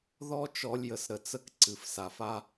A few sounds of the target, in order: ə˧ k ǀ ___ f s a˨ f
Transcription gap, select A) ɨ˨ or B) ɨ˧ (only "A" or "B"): A